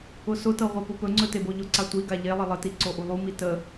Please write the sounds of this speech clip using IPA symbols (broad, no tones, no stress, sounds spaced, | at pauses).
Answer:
ʊ s ʊ t ɤ ʁʷ e p ʊ p ɵ ŋ͡ǀ ɵ t e b o ʎ ʊ ǀ a tʷ i ɡ a ʎ e lˠ ə lˠ ə t i ǀ o ʔ u lˠ u m i t ə